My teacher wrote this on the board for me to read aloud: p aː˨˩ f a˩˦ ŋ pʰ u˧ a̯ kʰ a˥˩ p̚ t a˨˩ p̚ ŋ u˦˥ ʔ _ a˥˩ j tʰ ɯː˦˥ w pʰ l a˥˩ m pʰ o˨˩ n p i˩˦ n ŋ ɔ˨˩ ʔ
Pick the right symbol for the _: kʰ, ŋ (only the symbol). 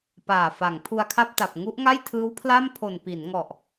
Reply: ŋ